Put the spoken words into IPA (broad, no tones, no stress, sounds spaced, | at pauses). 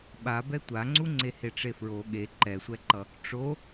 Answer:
ɓ a b ɛ tʷ a ŋ͡ǀ u ŋ͡ǀ e h e ʈ͡ʂ e f ɹ o ɠ e ǃ ɛ sʷ ɛ ǃ ʌ | ʈ͡ʂ o